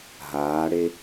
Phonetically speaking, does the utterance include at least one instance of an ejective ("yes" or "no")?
no